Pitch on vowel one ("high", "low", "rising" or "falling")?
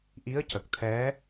rising